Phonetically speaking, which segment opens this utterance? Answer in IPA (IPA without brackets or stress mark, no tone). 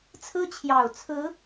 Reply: t͡sʰ